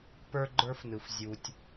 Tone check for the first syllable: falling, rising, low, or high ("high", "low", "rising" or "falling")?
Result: high